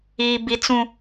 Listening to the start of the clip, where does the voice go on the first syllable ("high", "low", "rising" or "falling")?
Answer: high